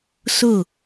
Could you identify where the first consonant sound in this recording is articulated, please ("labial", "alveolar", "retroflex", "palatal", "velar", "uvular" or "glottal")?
alveolar